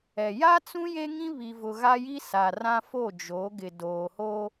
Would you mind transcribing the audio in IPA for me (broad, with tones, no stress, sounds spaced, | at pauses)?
ɛ˨ j a˦ t͡s ũ˦ j e˦ ŋ ĩ˦ β i˨ v ʊ˨ ɣ a˦ j i˦ s a˨ r ã˦ f o˦˨ d͡ʒ o˨˦ ɡ ɪ˨ d oː˨ h o˦